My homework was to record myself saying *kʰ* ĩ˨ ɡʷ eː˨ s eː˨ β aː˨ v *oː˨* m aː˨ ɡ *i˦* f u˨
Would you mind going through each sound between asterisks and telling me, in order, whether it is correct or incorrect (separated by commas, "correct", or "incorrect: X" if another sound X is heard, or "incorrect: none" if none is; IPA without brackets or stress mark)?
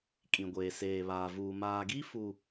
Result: incorrect: kʼ, incorrect: uː˨, correct